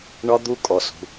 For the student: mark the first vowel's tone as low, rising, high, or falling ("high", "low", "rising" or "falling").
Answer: high